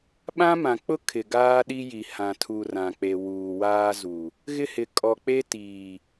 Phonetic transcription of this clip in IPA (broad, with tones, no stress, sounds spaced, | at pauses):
ɓ ã˦ m ã˨ k͡p ʊ˦ kʰ ɪ˨ ɡ aː˦ ɗ i˦ j i˨ h ã˨ tʰ u˨ r ã˨ k͡p e˨ w uː˨ w aː˦ z u˨ | ɣ ɪ˦ h ɪ˨ kʼ ɔ˨ k͡p e˦ t iː˨